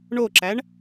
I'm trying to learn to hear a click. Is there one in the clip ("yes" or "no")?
yes